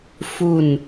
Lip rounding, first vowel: rounded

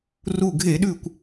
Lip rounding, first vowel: rounded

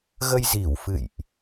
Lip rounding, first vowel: unrounded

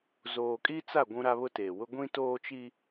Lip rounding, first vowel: rounded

